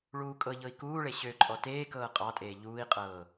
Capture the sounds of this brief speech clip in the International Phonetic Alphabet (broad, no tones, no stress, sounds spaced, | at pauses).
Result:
ɭ uː kʼ ɤ ʎ ɤ i̯ k uː ɭ e ɕ ø ǃʼ ɔ t eː k ɤː qʼ ɑ tʼ eː ʎ uː i̯ qʼ ɤː